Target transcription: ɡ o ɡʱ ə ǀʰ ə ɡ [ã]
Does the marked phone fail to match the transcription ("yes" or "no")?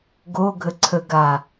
yes